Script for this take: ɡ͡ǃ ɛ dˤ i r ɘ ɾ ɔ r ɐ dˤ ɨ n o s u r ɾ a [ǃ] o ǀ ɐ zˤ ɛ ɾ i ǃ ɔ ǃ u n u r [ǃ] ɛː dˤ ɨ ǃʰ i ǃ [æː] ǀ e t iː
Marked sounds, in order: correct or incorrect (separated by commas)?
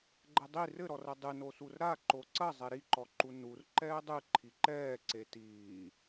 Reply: correct, correct, incorrect